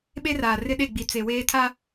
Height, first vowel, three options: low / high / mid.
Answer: mid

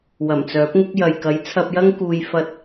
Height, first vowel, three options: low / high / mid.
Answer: low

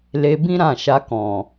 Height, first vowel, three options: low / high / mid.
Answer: mid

